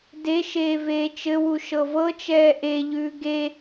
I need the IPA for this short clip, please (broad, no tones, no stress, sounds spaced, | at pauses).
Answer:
d e ʃ eː v eː t͡ʃ ɘ w u ʃ ɤ v ɤ t͡ʃ ɛː ʔ e ʎ ʉː ɡ e